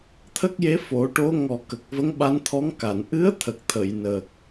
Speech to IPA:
t̪ʰ ə˦˥ k̚ j e˧˥ f o˨˩˦ ʈ o˧˥ ŋ ɔ˨˩ k ə˨˩ k̚ v ə˧˥ ŋ ɓ a˧˥ n t̪ʰ ɔ˧˥ ŋ k a˨˩˨ n ʔ ɨ˧˥ ə̯ t̪ʰ ə˨˩ k̚ t̪ʰ ə˨˩˨ j n ə˨˩ k̚

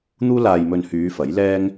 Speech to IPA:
n̪ uː˥ l aː˧ j m ɵ˧ n h yː˨˧ f ɐ˨˥ j l ɛː˥ ŋ

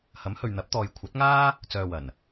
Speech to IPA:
h ɐ˨˥ m h ɵ˨ ɥ n̪ ɐ˨˥ p̚ t̪ ɔː˨ j kʷʰ ɐ˨˥ t̚ ŋ aː˥ | t͡s œː˨ w ɐ˨˩ n

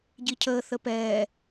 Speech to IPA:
ɟ i cʰ əː θ ə p ɛː

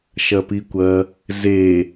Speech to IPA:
ʃ ɐ p i kʷ ɐ | z e

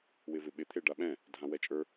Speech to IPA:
w ɪ v ɪ ɓ ɪ t̪ʰ e ɖ a ɓ ɛ̃ | dʱ ã w ɛ t͡ʃʼ ə˞

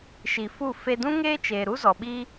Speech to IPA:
ʃ i˨ f u˦˨ f e˧ d ũ˦ ŋ eː˦ t͡ʃ eː˨ ɾ u˦ z ɔ˨ ɓ i˦

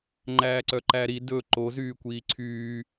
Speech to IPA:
ŋ͡ǃ æː ǀ œ ǃ æ ɾ i d ɵ ǃ o z yː kʷ iː ǀʰ yː

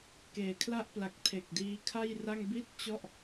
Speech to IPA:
k eː˨˩ kʰ l a˥˩ ʔ p l a˨˩ k̚ tʰ e˨˩ k̚ d iː˧ kʰ a˥˩ j r a˥˩ ŋ b i˥˩ t̚ t͡ɕ ɔ˥˩ ʔ

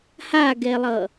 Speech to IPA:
h a ɡ ɛ lˠ ʌ

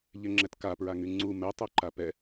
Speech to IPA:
ʎ ɛ ŋ͡ǁ ɛ t k a p ɹ a ŋ y ŋ͡ǀ u m ɛ tˤ o ǃ a p ɛ

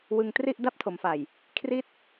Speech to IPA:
w ɯ˧ ŋ t r i˥˩ ʔ d a˥˩ p̚ tʰ o˩˦ m f a˨˩ j | kʰ r i˥˩ t̚

